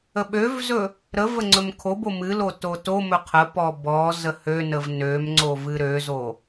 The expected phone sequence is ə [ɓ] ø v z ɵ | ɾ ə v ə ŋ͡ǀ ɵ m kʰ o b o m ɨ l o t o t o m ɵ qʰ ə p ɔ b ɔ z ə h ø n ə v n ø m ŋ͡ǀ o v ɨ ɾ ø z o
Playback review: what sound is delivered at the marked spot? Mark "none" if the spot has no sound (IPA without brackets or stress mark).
ɓ